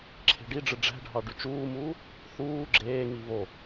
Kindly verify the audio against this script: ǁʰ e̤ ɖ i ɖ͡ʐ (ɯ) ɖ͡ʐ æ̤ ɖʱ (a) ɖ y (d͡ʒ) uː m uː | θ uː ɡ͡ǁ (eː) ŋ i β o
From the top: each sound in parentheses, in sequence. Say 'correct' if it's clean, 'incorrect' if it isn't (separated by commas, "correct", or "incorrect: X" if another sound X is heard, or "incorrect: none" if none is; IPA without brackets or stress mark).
correct, incorrect: ɑ, incorrect: t͡ʃ, correct